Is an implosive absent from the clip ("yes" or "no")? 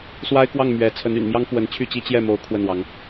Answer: yes